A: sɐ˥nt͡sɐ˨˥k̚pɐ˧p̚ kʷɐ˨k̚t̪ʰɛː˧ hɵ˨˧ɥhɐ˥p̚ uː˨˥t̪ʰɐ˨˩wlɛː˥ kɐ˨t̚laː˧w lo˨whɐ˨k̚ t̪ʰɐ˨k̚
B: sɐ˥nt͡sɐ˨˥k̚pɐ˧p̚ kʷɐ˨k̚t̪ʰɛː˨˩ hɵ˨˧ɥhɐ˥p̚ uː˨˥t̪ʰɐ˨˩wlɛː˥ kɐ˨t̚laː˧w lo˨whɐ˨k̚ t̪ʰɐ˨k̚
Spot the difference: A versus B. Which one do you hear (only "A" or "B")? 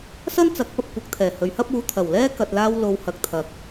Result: B